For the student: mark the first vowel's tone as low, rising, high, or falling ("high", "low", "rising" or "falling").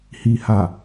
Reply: low